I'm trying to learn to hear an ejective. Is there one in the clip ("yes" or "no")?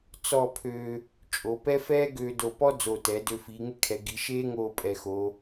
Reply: yes